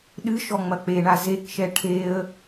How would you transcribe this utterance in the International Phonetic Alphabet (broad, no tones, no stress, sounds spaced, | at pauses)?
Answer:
ɗ ɨ ʃ ɔ ŋ͡m ɐ k͡p e ɳ a z e k ʃ ɛ ʈʰ e ə̯